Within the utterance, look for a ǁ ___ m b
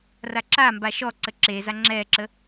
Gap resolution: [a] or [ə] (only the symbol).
a